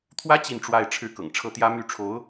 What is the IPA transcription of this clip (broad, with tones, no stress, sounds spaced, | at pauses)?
t̪ʰ w ä˥ t͡ɕ i˥˧ n ʈ͡ʂ w a˥˧ ɪ̯ ʈ͡ʂʰ ɻ̩˥˩ k ɤ̰˨˩ ŋ ʈ͡ʂʰ ɤ˥ t̪ j ä˥ m y˥˩ ʈ͡ʂʰ o˧˥ ʊ̯